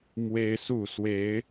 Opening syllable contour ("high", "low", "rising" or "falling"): high